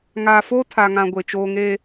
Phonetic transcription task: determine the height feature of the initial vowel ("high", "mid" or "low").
low